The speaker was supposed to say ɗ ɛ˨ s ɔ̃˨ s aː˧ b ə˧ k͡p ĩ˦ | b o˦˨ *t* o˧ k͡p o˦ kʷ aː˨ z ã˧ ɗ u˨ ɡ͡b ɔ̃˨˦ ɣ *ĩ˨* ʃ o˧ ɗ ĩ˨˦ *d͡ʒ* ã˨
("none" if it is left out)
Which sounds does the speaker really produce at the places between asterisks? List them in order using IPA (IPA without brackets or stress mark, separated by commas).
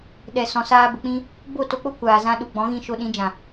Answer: t, ĩ˧, d͡ʒ